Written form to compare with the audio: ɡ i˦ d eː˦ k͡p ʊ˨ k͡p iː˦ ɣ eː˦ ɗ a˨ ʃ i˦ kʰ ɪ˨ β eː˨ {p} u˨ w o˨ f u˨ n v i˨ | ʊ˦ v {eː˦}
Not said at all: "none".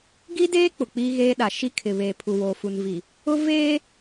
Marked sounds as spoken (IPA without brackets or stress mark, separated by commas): pʰ, eː˦